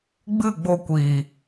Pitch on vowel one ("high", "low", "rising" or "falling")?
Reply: falling